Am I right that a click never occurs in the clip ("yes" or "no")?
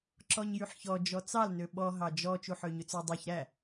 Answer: no